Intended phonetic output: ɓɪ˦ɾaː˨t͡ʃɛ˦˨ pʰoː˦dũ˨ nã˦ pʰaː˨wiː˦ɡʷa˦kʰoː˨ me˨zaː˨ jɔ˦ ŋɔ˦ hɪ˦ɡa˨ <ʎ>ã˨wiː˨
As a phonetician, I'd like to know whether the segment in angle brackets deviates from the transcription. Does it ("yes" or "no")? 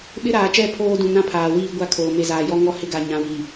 yes